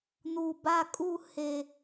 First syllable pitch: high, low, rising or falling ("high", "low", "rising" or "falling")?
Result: low